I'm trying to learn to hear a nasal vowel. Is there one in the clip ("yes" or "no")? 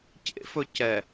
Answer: no